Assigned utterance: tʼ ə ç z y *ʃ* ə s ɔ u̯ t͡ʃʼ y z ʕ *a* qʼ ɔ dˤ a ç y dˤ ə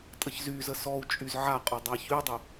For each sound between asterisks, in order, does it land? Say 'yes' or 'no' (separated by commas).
no, yes